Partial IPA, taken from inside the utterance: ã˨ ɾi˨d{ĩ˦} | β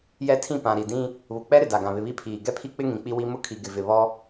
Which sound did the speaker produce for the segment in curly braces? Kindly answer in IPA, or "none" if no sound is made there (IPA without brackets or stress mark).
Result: ĩ˦